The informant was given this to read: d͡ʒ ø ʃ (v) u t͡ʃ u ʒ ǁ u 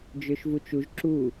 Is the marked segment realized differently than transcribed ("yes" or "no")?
no